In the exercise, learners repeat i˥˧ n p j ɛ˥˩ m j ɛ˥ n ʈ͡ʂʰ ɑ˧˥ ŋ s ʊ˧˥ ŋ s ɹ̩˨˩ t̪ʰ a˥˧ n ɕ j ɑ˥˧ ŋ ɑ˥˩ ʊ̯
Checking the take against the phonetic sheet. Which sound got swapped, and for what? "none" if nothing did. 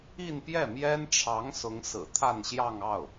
none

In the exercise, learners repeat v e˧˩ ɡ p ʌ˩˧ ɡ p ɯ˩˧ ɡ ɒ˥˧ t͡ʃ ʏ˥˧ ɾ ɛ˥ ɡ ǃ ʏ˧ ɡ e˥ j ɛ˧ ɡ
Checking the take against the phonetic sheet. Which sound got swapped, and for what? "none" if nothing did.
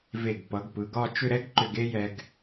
none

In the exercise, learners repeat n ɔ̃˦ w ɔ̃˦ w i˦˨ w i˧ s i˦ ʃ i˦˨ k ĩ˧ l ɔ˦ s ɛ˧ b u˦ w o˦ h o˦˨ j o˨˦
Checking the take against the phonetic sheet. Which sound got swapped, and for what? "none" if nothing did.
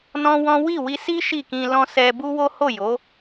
ɔ˦ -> ɔ̃˦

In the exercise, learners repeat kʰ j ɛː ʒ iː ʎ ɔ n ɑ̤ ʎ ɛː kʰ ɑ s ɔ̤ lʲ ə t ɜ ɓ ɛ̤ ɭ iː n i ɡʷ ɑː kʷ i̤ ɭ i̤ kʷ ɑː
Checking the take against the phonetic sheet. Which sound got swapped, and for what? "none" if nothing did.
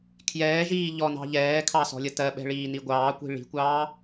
none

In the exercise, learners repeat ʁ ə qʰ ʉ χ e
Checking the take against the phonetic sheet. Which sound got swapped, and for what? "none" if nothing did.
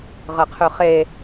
none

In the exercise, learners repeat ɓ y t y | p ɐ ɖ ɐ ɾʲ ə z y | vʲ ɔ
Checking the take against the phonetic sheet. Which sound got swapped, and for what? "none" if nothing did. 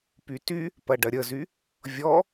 ɓ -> p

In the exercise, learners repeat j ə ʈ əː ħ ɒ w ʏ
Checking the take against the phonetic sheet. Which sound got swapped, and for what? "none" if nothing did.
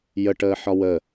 ʏ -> ə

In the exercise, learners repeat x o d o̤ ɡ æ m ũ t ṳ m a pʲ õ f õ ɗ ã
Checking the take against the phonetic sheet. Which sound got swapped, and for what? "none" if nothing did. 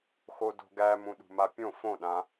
t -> ɗ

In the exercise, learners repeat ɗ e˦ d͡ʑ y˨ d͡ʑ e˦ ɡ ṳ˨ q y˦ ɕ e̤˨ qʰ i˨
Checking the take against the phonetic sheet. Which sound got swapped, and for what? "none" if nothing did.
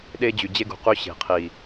none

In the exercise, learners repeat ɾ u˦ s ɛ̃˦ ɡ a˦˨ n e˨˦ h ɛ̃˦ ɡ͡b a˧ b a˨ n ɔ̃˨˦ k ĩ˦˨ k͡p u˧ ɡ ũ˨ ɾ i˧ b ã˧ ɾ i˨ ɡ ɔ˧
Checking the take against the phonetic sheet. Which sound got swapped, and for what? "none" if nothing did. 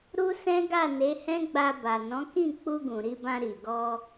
none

